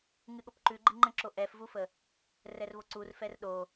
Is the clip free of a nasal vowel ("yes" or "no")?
no